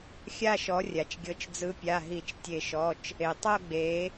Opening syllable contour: falling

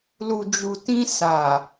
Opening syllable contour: low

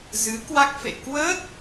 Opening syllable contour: rising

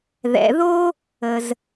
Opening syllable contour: low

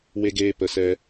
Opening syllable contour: high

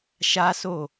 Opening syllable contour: high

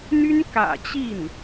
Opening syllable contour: high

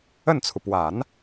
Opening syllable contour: falling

